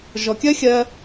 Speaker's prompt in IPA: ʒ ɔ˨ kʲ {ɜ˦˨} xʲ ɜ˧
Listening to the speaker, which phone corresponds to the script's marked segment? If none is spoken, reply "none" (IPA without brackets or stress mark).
ɜ˦